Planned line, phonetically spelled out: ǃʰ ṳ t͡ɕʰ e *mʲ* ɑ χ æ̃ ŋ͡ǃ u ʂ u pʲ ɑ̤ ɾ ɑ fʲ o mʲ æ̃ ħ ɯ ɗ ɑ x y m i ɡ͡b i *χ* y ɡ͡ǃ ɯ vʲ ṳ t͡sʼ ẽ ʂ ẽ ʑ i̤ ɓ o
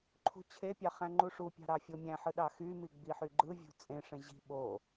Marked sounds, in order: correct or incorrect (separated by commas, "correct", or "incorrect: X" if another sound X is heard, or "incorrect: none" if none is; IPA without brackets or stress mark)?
incorrect: pʲ, incorrect: ħ